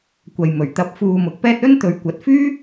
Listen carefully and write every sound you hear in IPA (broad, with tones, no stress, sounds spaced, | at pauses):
kʷ ɐ˨ j m ɵ˨˩ ɥ t̪ ɐ˨˥ p̚ f uː˨ m ʊ˨˥ k̚ p ɛː˥ t̚ ɵ˥ n t̪ ɵ˨ ɥ kʷ ɐ˨˥ t̚ f yː˥